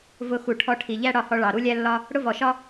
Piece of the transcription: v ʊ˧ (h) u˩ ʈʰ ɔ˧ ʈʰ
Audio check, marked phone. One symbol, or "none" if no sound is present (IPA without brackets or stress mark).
x